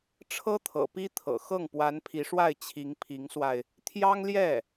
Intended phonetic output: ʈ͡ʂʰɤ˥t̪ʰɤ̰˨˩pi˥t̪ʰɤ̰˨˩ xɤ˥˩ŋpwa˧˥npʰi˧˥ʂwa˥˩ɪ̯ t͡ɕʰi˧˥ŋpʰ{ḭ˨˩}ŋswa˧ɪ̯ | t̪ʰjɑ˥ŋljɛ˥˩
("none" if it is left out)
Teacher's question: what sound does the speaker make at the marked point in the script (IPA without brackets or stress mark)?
i˧˥